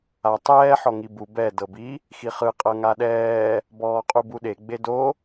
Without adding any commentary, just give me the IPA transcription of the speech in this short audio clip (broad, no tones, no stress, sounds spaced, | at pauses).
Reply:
a tˤ ɛː ħ ɔ ŋ i b u b ɛ d ɤ b i | x i χ ɯ qʼ ɤ ŋ a ɗ ɛː | b ɔː qʼ u b u ɗ e ɡ͡b e d o